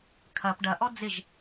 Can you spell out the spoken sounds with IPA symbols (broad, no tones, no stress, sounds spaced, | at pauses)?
kʰ ɐ p ɖ ɐ ʔ ɔ d͡z ɪ ʒ